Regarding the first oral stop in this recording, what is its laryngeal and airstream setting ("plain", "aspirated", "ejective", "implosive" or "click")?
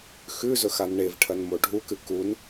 aspirated